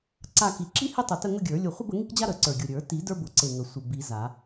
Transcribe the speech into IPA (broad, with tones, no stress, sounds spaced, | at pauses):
ǀ a˥˧ k i˧˩ ǁ i˥ h e˥ tˤ ʊ˧˩ t ə˥˧ ŋ ʊ˥˧ ɡʲ ə˞˨˩˦ lʲ ʊ˧˩ χʷ ə˥˧ b ə˨˩˦ ŋ i˥ k d͡ʑ a˥ ɾ ə˨˩˦ ǀ ə˞˧˩ ɡʲ ʊ˧˩ ɾʲ ə˞˨˩˦ t i˨˩˦ d ə˞˥ b ʊ˨˩˦ ǀ e˧˩ ŋ ə˨˩˦ sʷ ə˧˩ b i˨˩˦ z a˨˩˦